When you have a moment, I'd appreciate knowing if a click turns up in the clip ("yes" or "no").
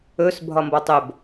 no